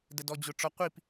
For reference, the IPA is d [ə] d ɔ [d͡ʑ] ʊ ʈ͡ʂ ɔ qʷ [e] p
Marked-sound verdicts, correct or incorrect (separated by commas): correct, correct, incorrect